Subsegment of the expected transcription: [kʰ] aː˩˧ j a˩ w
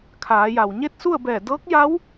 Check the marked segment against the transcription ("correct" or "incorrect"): correct